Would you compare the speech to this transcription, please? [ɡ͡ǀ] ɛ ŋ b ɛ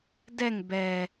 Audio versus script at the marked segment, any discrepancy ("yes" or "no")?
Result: yes